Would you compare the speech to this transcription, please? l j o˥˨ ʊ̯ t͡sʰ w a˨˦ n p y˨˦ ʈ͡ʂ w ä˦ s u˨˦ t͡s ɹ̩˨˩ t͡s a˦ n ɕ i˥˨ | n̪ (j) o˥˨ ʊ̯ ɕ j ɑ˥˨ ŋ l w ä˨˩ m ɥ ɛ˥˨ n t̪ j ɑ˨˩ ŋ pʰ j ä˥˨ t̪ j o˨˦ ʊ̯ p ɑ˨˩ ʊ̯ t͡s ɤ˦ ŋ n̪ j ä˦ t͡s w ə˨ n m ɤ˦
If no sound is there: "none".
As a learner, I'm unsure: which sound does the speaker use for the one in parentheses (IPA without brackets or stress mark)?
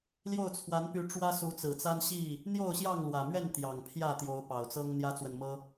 j